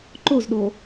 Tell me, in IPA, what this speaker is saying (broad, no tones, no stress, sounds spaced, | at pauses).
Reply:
ǃ o z ɗ o